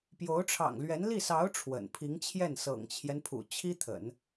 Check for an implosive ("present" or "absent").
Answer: absent